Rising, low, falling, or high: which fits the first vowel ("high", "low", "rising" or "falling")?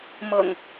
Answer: low